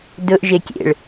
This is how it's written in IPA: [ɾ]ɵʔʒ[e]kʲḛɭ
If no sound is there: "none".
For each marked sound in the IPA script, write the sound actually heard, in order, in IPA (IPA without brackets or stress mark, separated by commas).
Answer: d, e